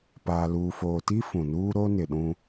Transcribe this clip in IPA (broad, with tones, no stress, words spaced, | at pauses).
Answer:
paː˨luː˨foː˨ti˦ fũ˨nuː˦ ɾo˦nɪ˨ɗũ˦